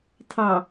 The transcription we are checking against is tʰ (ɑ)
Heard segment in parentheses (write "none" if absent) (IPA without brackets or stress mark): ɑ